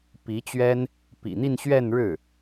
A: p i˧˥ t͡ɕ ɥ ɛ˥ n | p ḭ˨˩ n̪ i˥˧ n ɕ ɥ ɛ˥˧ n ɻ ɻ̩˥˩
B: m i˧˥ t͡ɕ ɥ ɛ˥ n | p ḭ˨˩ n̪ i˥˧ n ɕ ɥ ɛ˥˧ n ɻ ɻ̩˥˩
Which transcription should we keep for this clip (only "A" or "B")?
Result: A